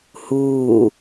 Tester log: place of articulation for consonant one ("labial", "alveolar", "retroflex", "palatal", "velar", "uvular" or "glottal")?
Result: glottal